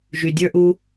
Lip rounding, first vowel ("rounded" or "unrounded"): rounded